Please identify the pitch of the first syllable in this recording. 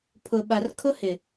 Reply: low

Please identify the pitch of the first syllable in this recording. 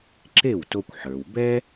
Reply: falling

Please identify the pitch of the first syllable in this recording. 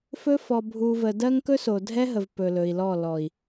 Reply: high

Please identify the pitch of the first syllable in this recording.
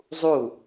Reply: falling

